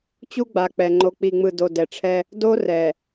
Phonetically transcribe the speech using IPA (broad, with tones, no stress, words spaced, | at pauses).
t͡ɕu˦ɡ͡ba˨k͡pɛ˨ ŋ͡ǃo˨k͡pi˨ŋ͡mɯ˨ do˨dɛ˨ʈ͡ʂʰɛ˦ | do˦rɛ˨